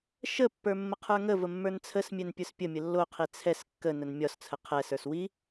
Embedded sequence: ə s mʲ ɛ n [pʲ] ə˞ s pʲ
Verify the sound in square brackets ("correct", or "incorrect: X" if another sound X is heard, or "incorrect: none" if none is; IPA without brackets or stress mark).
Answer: correct